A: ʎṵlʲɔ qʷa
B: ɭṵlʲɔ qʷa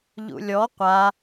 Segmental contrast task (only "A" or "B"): A